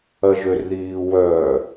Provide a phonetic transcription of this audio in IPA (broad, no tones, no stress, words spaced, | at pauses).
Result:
ɐʒørðiːwœ